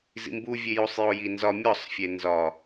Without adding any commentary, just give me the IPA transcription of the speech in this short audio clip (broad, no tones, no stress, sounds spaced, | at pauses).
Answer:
z ḭ m b u vʲ e j u sˤ j o j i n z ɒ mʲ ɒ sˤ fʲ e n z ɒ